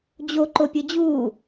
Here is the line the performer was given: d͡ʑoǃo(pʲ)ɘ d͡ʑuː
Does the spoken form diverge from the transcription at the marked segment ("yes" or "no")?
no